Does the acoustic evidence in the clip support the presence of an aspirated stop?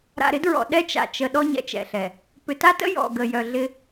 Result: no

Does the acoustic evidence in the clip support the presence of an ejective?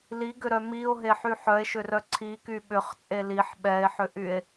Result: yes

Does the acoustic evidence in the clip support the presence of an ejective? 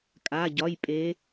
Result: yes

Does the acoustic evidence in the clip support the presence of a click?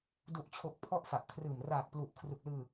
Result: no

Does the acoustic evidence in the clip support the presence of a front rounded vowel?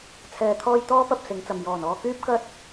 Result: yes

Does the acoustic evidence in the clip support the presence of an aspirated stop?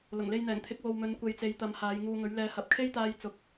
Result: yes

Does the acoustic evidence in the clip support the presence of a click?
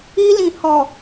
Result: no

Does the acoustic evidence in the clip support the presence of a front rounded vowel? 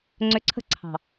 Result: yes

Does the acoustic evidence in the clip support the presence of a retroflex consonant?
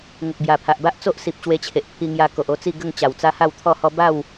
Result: no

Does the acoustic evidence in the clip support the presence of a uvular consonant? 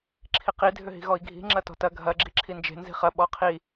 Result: yes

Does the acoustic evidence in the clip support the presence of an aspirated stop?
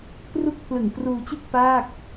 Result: yes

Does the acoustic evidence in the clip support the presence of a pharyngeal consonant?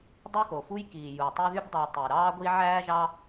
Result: yes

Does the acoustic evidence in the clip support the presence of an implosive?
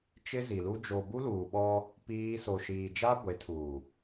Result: yes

